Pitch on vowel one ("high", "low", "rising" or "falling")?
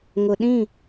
low